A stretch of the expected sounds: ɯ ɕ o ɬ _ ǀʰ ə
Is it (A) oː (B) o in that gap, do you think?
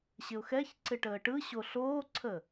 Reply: A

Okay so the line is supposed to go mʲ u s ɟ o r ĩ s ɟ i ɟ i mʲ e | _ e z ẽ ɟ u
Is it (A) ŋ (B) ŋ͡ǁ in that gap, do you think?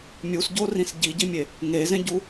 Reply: A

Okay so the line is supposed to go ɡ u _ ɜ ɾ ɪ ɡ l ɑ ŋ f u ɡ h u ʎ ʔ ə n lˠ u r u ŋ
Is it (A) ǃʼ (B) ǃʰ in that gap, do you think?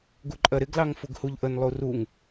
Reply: A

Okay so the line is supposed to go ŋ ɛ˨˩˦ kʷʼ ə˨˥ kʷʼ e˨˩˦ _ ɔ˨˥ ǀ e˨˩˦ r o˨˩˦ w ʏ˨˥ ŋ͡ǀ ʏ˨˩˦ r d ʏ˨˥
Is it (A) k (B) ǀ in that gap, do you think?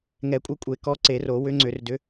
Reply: A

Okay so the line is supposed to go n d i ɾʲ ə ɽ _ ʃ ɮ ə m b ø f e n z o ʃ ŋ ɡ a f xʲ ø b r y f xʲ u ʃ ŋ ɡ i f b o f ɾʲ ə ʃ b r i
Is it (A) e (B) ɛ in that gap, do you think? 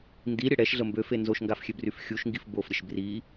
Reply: B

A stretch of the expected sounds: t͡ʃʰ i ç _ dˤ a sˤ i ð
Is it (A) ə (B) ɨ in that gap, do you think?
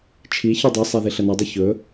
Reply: B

